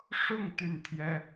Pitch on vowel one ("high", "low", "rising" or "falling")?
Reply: falling